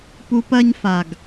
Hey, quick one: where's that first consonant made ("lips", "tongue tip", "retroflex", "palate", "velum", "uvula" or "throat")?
lips